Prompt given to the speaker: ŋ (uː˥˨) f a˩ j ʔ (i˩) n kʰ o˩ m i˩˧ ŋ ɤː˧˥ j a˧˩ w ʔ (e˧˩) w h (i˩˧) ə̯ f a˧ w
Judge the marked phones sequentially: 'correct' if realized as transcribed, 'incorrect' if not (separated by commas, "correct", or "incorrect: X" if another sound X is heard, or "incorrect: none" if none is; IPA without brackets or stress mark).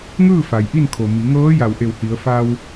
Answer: incorrect: ɯː˥˨, incorrect: i˥˨, correct, correct